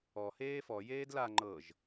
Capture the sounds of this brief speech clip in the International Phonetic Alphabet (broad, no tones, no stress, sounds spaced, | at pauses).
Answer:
ɔ h eː f ɔ j eː d l a ŋ͡ǃ ɤ ʒ